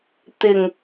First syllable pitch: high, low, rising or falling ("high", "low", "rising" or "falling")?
low